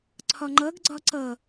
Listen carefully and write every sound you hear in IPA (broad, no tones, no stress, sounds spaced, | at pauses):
ǀʰ ɒ ŋ͡ǃ ʌ ɡ ɡ͡ǀ ɒ ǀ ʌ